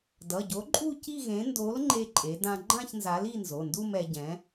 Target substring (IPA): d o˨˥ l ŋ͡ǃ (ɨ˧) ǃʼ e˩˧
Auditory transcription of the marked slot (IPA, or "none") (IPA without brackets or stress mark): e˧